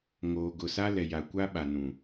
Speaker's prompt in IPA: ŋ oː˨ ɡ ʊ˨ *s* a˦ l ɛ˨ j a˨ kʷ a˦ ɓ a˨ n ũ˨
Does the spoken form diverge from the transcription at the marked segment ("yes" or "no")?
no